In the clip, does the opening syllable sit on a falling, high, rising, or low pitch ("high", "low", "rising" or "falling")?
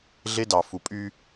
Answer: high